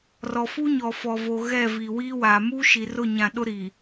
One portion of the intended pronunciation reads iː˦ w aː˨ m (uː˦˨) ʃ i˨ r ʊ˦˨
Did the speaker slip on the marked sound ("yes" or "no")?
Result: yes